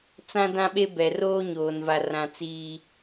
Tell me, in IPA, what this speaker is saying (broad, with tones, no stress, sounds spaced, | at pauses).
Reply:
t͡s ã˦ d ã˦ ɓ e˦ b ɛ˨ r oː˦ ɲ oː˨ n v a˨ r ã˨ t͡s iː˦